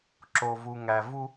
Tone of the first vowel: low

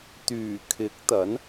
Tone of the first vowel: low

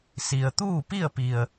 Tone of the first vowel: low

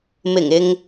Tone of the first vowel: low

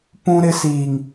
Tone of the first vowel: high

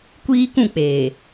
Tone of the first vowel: high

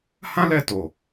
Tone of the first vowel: high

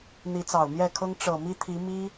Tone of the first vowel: rising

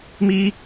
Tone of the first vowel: high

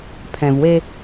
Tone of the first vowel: low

